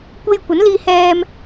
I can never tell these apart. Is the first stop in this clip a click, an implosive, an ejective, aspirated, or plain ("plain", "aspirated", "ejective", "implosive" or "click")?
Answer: plain